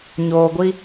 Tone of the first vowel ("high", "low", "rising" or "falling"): low